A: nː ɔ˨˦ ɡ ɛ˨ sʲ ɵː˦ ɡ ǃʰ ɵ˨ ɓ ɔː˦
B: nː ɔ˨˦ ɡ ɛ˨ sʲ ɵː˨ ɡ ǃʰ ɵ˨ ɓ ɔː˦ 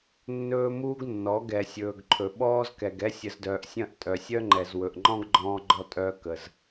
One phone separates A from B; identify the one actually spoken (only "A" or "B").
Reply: B